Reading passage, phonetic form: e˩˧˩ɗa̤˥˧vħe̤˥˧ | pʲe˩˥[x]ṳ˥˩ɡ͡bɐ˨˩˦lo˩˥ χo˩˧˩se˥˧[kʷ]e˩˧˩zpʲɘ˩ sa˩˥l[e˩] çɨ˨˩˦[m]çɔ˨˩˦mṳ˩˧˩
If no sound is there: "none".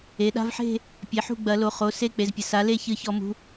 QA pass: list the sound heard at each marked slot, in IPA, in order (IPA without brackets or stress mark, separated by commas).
ħ, k͡p, e˥˧, none